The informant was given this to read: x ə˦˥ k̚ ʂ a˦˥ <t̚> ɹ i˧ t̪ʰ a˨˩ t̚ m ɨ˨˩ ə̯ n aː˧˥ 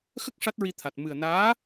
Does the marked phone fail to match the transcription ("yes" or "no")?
no